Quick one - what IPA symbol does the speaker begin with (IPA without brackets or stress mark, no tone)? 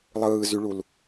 lˠ